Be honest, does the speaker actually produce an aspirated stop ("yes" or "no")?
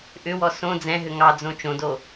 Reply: no